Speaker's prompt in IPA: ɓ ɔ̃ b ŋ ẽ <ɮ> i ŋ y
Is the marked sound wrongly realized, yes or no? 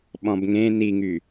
yes